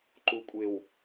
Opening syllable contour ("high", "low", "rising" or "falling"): low